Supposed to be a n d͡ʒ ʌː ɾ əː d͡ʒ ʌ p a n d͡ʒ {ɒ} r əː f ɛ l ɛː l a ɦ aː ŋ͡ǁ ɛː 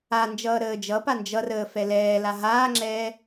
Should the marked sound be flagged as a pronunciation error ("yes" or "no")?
yes